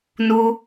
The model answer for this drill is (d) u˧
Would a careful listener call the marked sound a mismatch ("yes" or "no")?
yes